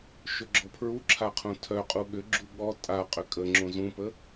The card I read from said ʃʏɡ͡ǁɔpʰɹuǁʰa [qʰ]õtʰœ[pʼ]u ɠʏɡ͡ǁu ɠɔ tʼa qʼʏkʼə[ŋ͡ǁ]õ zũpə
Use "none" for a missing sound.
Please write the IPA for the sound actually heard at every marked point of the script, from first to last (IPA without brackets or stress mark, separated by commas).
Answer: qʰ, qʼ, ŋ͡ǁ